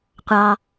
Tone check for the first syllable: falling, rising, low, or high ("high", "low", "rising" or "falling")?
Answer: low